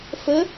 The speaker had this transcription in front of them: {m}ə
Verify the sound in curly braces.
incorrect: f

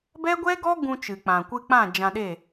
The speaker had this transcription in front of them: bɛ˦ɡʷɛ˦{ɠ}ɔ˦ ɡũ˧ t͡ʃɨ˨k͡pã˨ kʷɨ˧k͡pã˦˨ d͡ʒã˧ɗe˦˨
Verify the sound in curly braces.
incorrect: ɡ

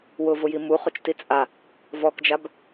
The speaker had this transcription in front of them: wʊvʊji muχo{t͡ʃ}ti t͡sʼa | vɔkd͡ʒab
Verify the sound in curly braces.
correct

